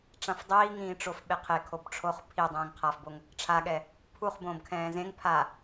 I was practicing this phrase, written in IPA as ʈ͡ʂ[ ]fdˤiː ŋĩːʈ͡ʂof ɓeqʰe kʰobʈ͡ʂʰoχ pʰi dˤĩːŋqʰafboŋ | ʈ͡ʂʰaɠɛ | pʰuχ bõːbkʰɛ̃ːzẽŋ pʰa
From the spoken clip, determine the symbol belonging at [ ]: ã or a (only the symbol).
ã